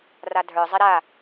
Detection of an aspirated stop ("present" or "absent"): absent